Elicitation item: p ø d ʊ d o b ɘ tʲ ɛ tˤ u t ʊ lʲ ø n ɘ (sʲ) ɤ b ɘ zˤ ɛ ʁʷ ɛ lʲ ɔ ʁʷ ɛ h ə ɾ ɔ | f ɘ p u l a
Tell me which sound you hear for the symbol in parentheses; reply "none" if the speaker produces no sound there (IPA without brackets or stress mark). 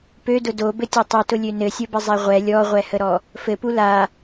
sʲ